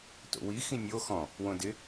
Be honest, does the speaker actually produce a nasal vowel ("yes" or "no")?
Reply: yes